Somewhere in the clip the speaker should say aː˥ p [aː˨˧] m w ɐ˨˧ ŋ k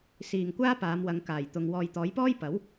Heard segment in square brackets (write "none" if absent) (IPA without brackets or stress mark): aː˨˧